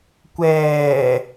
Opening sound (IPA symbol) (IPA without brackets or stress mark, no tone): kʷ